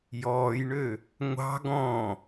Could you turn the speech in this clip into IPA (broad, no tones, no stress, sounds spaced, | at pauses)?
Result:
j ɔː j ɳ ø | ŋʷ ɑ̤ ɡ ɔ̃